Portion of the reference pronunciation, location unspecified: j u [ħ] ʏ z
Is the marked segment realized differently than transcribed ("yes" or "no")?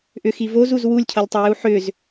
no